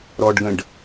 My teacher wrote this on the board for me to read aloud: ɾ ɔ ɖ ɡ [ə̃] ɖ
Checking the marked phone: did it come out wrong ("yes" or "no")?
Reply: no